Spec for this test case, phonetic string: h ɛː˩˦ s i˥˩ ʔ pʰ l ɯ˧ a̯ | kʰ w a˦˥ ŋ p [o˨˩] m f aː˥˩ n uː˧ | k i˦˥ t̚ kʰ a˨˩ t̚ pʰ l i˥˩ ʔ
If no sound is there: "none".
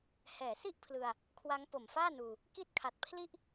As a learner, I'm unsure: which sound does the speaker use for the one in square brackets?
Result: o˨˩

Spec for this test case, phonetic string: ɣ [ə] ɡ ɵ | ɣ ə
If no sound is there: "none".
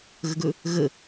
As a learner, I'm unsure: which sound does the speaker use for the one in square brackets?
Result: ə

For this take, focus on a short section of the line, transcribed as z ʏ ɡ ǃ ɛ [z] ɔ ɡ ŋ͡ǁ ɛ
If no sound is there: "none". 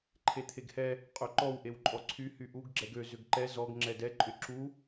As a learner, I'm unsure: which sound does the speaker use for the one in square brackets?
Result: z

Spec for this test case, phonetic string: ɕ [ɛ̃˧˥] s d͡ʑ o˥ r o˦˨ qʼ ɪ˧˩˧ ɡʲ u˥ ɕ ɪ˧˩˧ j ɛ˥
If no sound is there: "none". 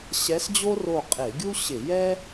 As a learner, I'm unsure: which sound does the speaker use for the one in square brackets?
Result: ɛ˧˥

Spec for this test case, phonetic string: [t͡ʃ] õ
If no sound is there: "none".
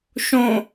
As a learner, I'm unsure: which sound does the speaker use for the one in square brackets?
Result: ʃ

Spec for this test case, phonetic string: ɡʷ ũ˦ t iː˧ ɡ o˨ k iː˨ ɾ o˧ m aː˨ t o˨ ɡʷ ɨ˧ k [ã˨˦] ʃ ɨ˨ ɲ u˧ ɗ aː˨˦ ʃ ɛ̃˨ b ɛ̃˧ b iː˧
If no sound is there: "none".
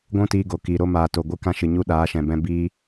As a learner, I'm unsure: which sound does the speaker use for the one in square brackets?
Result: ã˧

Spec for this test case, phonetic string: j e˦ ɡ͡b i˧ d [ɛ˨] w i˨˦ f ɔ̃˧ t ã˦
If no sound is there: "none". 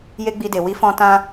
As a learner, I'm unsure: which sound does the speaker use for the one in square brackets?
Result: e˨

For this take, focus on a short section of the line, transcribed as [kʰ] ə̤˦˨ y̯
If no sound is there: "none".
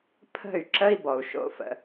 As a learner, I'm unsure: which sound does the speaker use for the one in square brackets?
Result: pʰ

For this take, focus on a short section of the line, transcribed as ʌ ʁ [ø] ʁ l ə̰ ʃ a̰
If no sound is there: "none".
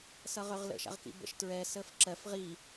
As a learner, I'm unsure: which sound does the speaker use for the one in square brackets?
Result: ø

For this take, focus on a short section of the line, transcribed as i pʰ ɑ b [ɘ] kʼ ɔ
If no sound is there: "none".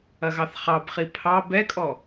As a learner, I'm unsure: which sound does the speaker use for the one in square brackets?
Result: ɛ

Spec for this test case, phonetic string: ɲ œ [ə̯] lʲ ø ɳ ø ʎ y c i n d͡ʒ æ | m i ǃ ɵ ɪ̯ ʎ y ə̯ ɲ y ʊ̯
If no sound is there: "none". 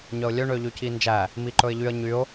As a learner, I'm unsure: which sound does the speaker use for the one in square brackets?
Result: ʊ̯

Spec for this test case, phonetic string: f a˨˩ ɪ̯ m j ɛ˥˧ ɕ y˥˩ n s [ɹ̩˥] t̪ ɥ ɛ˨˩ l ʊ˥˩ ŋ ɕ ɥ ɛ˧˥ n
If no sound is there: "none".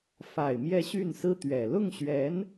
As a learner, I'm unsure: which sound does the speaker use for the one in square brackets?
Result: ɹ̩˥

